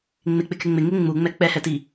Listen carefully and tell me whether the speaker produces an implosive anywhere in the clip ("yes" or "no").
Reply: no